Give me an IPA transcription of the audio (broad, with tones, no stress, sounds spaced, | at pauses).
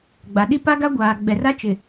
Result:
ɡ͡b a˨ ɗ i˦ p a˦ ɡ a˦ ɡʷ aː˨ ɡ͡b ɛ˨ r a˦ t͡ʃ ɪ˨